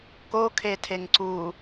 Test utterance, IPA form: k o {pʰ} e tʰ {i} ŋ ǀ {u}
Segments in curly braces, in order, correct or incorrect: incorrect, incorrect, correct

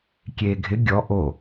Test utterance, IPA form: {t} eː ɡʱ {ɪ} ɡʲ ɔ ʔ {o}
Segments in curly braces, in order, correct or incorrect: incorrect, correct, correct

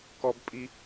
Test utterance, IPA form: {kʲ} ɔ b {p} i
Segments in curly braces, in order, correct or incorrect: incorrect, incorrect

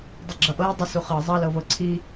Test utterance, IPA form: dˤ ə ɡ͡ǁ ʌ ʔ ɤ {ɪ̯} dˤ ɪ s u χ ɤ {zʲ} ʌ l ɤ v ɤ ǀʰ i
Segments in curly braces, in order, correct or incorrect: correct, incorrect

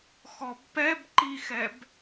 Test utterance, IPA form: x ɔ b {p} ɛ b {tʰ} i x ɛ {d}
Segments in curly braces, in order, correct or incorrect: correct, incorrect, incorrect

